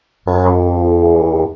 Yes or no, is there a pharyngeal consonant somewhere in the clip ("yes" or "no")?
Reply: yes